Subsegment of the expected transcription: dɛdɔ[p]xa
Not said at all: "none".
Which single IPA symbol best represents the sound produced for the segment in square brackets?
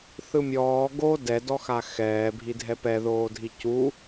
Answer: none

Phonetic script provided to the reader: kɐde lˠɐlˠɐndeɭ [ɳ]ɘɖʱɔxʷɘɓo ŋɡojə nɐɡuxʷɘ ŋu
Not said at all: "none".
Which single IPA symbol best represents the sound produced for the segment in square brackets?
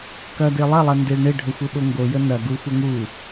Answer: ɳ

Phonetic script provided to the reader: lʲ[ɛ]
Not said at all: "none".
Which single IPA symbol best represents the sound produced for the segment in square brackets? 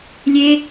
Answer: e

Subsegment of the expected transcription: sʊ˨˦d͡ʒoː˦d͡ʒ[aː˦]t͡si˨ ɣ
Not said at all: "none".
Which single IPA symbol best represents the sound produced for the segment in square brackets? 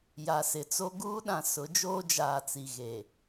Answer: aː˨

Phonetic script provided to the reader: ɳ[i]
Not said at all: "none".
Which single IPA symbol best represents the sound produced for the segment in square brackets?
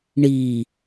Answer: i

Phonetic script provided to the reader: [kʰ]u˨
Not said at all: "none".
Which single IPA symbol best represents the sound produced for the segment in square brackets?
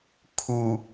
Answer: kʰ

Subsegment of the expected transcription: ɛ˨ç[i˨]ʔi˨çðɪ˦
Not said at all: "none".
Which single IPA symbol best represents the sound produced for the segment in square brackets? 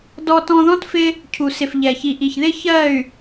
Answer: i˨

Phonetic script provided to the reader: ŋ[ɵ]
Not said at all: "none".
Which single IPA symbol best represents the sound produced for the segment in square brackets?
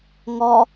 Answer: ɔ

